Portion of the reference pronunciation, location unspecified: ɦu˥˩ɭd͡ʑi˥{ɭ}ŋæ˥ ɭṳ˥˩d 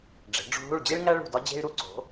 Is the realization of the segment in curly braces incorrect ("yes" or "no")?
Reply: no